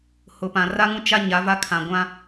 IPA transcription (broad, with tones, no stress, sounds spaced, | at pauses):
h ʊ˨ p ã˨ r a˦ ŋ ũ˦ t͡ʃ a˦ ɲ a˨˦ v a˦ kʰ ã˨ ɡʷ ã˦